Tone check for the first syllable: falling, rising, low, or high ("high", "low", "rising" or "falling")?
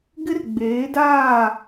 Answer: high